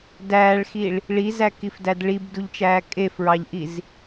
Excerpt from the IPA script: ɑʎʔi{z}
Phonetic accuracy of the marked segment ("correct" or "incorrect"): correct